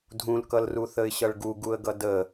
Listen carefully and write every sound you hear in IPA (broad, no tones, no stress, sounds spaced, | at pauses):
dʱ ũ l k ʌ l r u θ ə ɪ̯ ɕ ʌ ɭ ɡ u ɡ u ə̯ ɡ ʌ d ə